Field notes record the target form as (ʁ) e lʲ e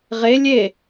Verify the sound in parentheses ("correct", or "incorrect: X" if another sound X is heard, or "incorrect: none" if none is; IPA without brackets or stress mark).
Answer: correct